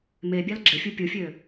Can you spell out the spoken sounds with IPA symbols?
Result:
m e bʲ ɑ l ɡ͡ǁ e fʲ u pʲ u fʲ ø

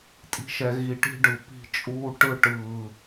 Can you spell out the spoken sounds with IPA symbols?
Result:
tʼ i̤˦ ʃ ɛ˧ ɣ i˧ ʈ i̤˦ ɖ ɯ˨ p i̤˧ t͡ʃʼ uː˧ ʈ ɯ˧ ʈ ɯː˨

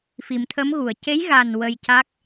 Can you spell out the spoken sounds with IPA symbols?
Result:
f i˨˩˨ m t̪ʰ ə˧˥ m ɣ u˨˩˨ ə̯ c e˧˥ j ɣ a˨˩ n w ə˧ j c a˦˥ k̚

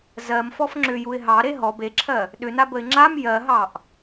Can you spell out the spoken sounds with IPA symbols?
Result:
z ɜ m f ɔ f ŋ͡ǁ ʏ j u ɪ̯ ɦ ɑ ɾ e ɦ ɔ b e ǁʰ ɜ | ɗ ʏ n a b ə ɪ̯ ŋ͡ǁ a m j ɜ ɦ ɑ ʔ

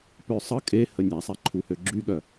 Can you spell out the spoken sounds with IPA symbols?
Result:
p ø sˤ ə kʼ e h ə nʲ a sˤ ɛ ǃʰ u h ø ɡ͡ǁ y ɠ œ

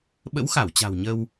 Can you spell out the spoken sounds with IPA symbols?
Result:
ɓ ə̰˧˥ w x a˧˩ w t͡ɕ a̤˨˩ w ɲ ə˧ w

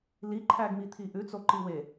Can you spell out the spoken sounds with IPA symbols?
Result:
l i ǃʰ æ ɡ m i t̪ʰ i ʔ ʉ t͡s o ǃ i w e

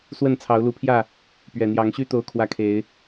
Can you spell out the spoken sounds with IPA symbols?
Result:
s w ə˥˨ n t͡sʰ ɑ˨˦ ʊ̯ l u˨˦ pʰ j ä˥˨ | p ɥ ɛ˨˩ n̪ j ɑ˨˦ ŋ ɕ y˦ t̪ o˦ ʊ̯ kʰ w ä˦ kʰ e˨˦ ɪ̯

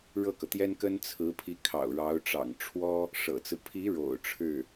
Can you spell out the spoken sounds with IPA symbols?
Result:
ɻ ɤ˥˩ k ɤ˩ t̪ j ɛ˥ n k ə˥ n t͡sʰ ɹ̩˧˥ pʰ i˧˥ kʰ ɑ̰˨˩ ʊ̯ ɻ ɑ˧˥ ʊ̯ ʈ͡ʂ ɑ̰˨˩ ŋ ʈ͡ʂʰ w ɔ˥ | ʂ ɤ̰˨˩ t͡s ɹ̩˦ pʰ i˧˥ ɻ o̰˨˩ ʊ̯ ʈ͡ʂʰ ɻ̩˥˩

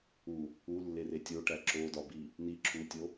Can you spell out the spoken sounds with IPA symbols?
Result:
u | u lː e r e tʲ o ʈ æ ǁ o d ɒ b i | n i ǁʰ u tʲ o

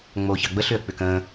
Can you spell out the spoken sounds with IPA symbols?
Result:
ŋ͡m oː ç ɑ ɡ͡b ə ɬ ʏ ə̯ k͡p ʏː k ə̃ː

